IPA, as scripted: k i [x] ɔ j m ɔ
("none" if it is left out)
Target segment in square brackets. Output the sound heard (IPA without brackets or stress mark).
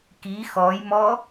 x